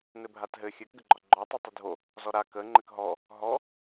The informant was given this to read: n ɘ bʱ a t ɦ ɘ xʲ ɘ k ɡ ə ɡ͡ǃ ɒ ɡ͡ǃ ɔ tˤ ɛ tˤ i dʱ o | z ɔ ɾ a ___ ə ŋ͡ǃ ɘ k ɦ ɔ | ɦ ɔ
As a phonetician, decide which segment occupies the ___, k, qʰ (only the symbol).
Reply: k